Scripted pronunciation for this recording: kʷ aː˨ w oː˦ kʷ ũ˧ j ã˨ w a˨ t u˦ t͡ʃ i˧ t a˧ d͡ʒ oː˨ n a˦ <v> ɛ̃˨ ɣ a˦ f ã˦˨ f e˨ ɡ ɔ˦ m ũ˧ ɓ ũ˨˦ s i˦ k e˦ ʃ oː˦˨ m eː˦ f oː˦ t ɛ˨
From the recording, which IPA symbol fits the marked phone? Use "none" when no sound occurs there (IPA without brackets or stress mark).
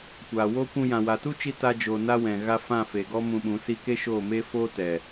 w